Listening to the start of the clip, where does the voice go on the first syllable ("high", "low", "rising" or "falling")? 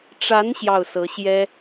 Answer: rising